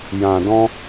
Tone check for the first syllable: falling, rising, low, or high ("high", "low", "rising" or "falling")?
low